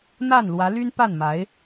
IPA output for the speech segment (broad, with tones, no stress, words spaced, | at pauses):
n̪a˥˩nlwä˧˥ly˥n pa˥˩nma˧˥ɪ̯